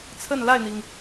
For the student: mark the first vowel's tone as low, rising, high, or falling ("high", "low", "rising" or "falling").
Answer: falling